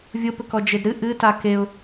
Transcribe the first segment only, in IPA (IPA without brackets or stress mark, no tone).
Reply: vʲ